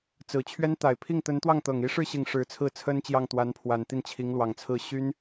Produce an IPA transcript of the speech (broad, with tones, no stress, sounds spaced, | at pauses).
t͡s ɹ̩˨˩ t͡ɕʰ ɥ ɛ˥ n t̪ a˨˩ ɪ̯ pʰ i˥˩ ŋ t̪ ə˧˥ n t̪ w ɑ˥˩ ŋ t̪ ɤ˨˩ ŋ i˧˥ ʂ ɻ̩˥˩ ɕ i˨˩ ŋ ʂ ɻ̩˧˥ t͡sʰ ɹ̩˥˩ t͡sʰ ə˥ n t͡ɕ j ɑ˥˩ ŋ t̪ w a˧˥ n pʰ w a˨˩ n t̪ i˥˩ n t͡ɕʰ i˧˥ ŋ l w ɑ˨˩ ŋ t͡sʰ ɹ̩˥˩ ɕ y˥ n